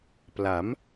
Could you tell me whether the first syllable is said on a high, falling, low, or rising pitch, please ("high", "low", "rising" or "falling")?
rising